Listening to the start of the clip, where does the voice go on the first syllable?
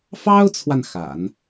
high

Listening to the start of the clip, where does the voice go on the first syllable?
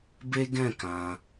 high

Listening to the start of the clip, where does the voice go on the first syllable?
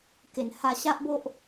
low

